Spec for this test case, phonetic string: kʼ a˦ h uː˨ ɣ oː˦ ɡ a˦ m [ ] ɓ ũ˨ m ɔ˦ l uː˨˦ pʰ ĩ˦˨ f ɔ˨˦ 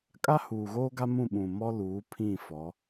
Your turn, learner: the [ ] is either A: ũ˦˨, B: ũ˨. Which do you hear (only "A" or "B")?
A